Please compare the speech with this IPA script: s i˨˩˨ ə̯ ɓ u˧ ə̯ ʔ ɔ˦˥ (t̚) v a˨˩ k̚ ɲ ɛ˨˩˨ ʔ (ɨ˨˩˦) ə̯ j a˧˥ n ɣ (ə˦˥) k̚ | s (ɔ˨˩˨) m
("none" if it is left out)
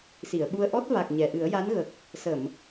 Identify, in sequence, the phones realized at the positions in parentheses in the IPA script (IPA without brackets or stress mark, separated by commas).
t̚, ɨ˨˩˦, ə˨˩, ə˨˩˨